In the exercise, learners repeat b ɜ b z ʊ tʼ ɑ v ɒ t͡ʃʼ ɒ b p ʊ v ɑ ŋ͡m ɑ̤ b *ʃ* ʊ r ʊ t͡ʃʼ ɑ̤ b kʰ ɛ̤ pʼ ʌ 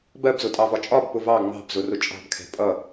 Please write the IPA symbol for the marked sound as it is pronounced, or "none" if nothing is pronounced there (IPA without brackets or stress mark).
z